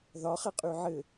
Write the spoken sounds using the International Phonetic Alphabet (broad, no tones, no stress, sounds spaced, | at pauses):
ð ɒ χ ɛ qʼ y ʕ ɘ